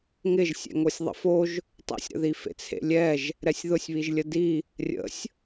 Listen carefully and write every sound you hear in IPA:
ŋ ɪ ʒ sʲ ɛ̰ ŋ o sʲ ðˤ ə̰ f o ʒ | tˤ ḛ sʲ ɾ ə̰ ð i f ḛ t͡sʰ ḛ lʲ ɛ ʒ | ɾ ɛ sʲ ð ʊ sʲ β i ʒ lʲ ə d i | rʲ ə̰ sʲ

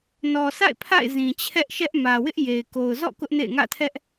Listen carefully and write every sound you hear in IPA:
n ɔ˨ sʰ a̰˦˨ ɪ̯ pʰ a̰˦˨ ɪ̯ z ĩ˨ t͡ɕʰ ɛ˦ ʔ ʃ ɛ˦ ʔ m ä˨ w ɪ˦ ʔ j e˨ ɪ̯ k o˨ ʊ̯ z ɔ̰˦˨ k ʊ˦ ʔ n ḛ˦˨ ɪ̯ ŋ ä̰˦˨ tʰ ɛ˦ ʔ

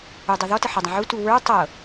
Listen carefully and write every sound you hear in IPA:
u dˤ ɤ ð ɔ t ə ħ ə dˤ ə̃ ʕ u t u w ə˞ tˤ ɤ

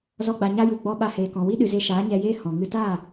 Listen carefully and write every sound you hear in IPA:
z ɔ˧ ɡ͡b a˨ ɲ a˦ j u˨ ɡ͡b ɔ˧ ɓ a˧ h eː˨ k ɔ̃˨ w i˦ ɗ ɨ˨ z e˧ ʃ aː˨˦ ɲ ɛ˧ j eː˦ h ɔ̃˨ ŋ ɨ˦ t a˦˨

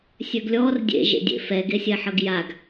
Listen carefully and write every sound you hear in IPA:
sʲ ø ɡ lʲ ɔ r dʲ ḛ ʒ ḛ dʲ ḛ f ɛ ɡ e sʲ ɛ ħ ʌ ɡ j a ɡ

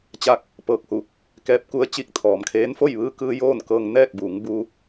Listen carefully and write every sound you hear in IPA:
t͡ɕ aː˧ k̚ | p ɤː˧˩ k̚ h u˧˩ | k ɛː˧˥ p̚ k u˧˥ ə̯ t͡ɕ iː˧ k̚ t̪ʰ ɔː˩˧ m kʰ eː˧˥ n f o˥˨ j ʋ ɯː˧ k ɯː˧ j oː˥˨ n k ɤː˧ ŋ n ɛː˥˨ k̚ b uː˩˧ ŋ b uː˧

